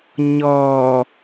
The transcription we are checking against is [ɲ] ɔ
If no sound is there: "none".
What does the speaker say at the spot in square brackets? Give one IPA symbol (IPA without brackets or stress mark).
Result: ɲ